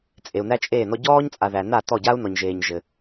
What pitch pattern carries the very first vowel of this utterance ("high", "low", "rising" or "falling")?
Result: low